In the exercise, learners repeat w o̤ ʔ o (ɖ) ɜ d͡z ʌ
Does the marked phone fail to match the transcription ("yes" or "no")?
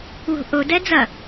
yes